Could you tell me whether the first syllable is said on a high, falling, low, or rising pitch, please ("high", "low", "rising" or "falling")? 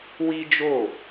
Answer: high